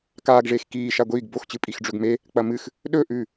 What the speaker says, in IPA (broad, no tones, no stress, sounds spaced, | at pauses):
k aː ɡ ʐ eː x k iː ʃ a ɡʷ iː ɡ b o x t͡ɕ ɨ pʼ i x ɖ͡ʐ ɵ ɡ m e | k͡p ɐ m ɨ x | ɗ ɵ ʔ ʉ